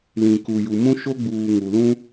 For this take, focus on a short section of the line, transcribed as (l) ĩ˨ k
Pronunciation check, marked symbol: correct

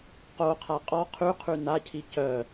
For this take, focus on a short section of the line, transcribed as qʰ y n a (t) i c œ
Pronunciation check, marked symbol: incorrect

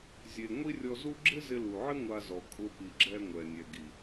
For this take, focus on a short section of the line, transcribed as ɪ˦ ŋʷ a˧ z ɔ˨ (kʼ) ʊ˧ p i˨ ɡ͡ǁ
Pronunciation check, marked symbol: correct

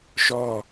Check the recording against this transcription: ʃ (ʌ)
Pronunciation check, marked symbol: incorrect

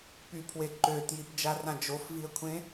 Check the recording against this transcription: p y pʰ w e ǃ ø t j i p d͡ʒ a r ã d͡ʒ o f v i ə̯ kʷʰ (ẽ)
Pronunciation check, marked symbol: correct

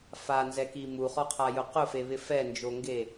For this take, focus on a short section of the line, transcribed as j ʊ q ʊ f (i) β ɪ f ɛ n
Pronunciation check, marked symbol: incorrect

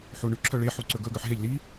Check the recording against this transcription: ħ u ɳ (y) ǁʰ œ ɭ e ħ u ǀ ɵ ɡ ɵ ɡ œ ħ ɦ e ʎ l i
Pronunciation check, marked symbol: correct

